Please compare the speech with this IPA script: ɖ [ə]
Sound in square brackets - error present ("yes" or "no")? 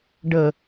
no